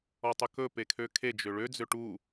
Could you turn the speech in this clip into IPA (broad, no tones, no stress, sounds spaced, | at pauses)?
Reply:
ɔ tˤ ɵ k ɵ p e kʰ ø kʰ e d͡ʒ ø ɭ ø d͡z ø ʈ u